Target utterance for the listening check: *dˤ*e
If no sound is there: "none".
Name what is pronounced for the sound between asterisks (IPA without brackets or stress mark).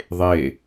ðˤ